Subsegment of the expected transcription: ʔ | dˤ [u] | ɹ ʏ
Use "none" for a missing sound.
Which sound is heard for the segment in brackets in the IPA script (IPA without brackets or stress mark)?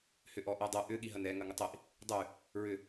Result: ʉ